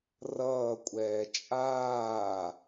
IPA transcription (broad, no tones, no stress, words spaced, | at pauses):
rʌːkʷʼɛː t͡ʃʼaː